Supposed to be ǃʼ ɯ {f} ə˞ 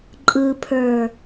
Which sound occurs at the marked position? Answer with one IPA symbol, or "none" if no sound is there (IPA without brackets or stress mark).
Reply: pʰ